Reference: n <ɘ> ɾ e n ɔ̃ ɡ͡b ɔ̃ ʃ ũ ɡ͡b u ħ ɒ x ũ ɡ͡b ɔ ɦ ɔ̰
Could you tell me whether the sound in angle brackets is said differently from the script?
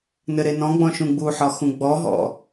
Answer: no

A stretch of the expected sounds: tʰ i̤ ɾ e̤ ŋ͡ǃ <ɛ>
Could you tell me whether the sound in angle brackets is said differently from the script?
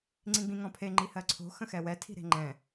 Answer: yes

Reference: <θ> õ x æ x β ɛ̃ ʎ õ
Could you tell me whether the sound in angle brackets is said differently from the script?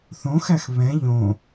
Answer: no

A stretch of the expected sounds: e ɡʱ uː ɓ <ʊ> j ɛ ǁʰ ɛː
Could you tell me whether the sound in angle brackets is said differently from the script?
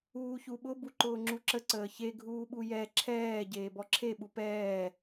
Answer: yes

